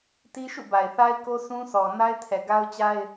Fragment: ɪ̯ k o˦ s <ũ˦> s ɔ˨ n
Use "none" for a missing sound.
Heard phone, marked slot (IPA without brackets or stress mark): ũ˦